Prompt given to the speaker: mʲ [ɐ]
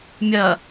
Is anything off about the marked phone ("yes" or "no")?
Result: no